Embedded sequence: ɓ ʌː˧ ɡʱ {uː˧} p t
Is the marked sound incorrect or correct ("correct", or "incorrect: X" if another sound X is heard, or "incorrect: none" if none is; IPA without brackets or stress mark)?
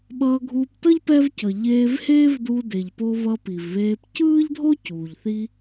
correct